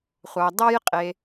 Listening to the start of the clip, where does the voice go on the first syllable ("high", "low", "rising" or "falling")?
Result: low